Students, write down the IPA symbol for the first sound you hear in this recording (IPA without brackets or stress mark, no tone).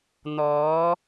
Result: n̪